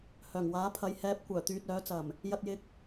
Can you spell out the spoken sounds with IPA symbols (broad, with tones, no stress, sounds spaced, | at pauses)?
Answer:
h œː˨˩ ŋ w aː˨˥ pʰ ɐ˨˧ j h ɛː˨˥ p̚ kʷ œː˨˩ t̪ yː˨ t̚ œː˨˥ t͡s ɐ˨˩ m | j ɐ˧ t̚ j ɪ˧ k̚